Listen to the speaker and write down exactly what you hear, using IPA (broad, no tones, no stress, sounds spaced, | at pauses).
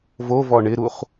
v o v ɔ ɳ ɪ ɾ u χ